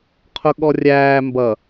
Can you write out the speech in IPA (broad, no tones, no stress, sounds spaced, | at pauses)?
qʰ ʊ ɠ ɔ rʲ æː m b ʌ